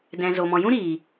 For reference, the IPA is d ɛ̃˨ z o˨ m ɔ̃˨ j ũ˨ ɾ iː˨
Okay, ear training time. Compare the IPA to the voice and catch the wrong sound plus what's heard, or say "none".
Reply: ũ˨ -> ũ˦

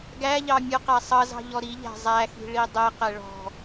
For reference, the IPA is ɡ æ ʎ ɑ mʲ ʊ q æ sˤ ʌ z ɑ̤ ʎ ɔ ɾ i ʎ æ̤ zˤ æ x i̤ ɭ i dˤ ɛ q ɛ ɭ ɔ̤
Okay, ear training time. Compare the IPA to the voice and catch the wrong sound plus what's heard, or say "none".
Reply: none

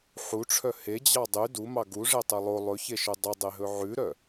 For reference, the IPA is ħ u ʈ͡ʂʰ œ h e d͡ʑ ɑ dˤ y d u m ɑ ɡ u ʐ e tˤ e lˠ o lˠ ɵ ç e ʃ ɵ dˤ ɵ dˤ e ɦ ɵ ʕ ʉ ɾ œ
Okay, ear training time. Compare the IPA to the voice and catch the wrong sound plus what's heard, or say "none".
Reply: none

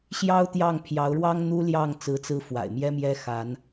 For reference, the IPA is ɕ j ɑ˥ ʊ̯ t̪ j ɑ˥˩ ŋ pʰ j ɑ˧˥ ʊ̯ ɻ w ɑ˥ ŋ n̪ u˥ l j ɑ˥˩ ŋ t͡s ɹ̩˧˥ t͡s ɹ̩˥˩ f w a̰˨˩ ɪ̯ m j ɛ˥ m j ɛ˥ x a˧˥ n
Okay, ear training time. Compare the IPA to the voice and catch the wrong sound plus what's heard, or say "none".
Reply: none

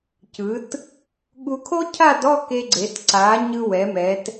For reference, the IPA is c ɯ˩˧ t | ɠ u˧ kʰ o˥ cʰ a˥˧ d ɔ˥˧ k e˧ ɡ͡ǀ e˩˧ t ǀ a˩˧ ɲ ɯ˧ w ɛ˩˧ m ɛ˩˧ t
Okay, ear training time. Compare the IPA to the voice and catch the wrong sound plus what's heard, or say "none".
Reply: none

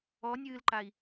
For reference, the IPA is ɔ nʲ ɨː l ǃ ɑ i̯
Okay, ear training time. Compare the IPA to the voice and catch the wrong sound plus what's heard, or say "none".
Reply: ɑ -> a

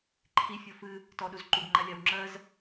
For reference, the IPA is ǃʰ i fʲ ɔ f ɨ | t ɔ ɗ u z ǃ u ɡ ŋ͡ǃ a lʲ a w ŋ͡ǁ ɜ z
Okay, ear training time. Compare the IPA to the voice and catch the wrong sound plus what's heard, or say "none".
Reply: none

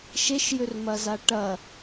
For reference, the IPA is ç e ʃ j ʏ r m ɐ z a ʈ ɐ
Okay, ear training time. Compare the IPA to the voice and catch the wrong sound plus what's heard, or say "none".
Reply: ç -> ʃ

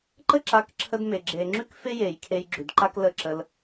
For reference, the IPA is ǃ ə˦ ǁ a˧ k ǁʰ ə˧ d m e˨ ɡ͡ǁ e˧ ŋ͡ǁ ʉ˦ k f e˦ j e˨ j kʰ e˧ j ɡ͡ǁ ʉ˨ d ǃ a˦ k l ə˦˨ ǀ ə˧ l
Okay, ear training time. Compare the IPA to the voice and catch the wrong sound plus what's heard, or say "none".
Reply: ǀ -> ǁ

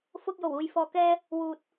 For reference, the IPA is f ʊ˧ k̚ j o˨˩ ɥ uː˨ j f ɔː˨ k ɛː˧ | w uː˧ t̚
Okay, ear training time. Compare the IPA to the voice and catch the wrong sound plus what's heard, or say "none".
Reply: ɥ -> w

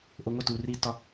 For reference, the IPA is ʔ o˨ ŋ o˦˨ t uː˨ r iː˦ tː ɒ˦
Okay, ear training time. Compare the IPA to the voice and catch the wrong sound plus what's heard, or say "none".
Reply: none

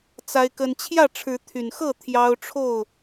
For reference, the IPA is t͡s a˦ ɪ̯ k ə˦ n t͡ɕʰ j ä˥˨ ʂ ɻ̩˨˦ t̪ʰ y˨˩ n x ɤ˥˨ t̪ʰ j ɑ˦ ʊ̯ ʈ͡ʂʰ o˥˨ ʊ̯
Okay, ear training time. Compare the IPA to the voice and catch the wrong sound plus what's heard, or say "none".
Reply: ʂ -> ʈ͡ʂʰ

